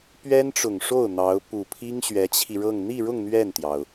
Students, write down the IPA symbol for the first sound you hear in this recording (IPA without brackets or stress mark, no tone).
p